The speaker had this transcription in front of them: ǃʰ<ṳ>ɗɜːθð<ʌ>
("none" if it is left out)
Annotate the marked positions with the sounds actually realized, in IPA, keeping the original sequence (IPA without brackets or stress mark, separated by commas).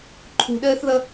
ṳ, ʌ